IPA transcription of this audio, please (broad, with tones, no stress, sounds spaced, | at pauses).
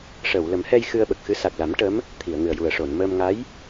ʂ ə˨˩˨ w l ə˨˩˦ m h ɛ˧ j x ɨ˧ ə̯ ɓ ə˨˩ k̚ x ɨ˧˥ s a˨˩ k̚ l a˨˩˦ m ʈ ə˧˥ m | t̪ʰ i˨˩˨ ə̯ ŋ ɨ˨˩ ə̯ j u˨˩ ə̯ ʂ o˨˩˨ n m əː˧ m ŋ a˧˥ j